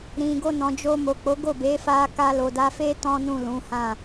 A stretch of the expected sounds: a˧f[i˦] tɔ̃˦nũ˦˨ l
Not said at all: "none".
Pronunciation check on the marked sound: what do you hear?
e˦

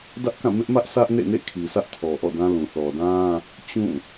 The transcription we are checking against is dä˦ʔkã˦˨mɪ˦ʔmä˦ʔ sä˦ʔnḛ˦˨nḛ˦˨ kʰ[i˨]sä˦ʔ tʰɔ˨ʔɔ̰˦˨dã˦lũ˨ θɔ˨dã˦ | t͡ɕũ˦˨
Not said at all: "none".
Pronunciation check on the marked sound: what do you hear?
i˨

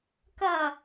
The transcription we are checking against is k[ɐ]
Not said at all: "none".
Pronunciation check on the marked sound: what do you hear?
ɐ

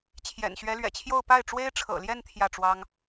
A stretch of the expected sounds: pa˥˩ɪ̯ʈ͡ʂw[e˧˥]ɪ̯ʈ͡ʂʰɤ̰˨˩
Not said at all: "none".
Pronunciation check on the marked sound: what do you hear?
e˥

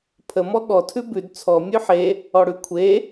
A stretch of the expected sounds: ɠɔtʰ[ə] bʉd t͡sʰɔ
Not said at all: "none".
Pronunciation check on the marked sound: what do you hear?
ʉ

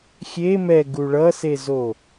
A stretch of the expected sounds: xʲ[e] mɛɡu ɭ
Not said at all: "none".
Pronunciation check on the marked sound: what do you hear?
e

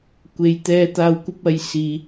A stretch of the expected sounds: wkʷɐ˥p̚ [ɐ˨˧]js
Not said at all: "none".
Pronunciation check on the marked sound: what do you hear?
ɐ˨˧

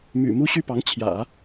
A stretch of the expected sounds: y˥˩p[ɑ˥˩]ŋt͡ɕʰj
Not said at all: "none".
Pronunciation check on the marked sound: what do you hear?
ɑ˧˥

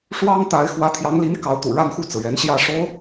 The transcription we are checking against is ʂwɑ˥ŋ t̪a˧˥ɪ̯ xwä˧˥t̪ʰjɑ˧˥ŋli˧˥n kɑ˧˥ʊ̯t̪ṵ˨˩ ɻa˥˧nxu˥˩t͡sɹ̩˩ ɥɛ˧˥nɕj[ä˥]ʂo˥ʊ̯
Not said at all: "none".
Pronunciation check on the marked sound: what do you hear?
ä˥˩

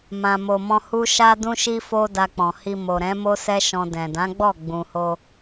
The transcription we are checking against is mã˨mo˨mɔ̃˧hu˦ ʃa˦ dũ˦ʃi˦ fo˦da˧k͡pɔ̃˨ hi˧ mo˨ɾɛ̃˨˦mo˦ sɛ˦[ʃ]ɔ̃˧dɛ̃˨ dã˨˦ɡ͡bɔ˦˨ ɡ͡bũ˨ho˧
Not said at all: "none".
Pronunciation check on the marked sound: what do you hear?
ʃ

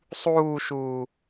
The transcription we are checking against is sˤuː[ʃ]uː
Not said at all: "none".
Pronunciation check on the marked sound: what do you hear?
ʃ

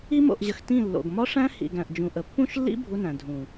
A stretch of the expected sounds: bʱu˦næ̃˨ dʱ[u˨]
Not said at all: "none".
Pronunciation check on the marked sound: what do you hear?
ũ˨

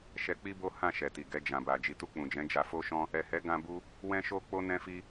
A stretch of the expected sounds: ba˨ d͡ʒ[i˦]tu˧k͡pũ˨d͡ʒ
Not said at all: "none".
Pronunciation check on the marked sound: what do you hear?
i˨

